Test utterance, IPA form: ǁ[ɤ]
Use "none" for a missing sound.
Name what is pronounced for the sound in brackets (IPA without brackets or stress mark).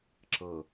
ɤ